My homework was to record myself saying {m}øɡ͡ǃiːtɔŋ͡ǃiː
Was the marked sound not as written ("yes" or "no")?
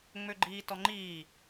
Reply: yes